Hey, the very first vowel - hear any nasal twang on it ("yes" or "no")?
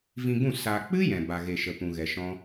yes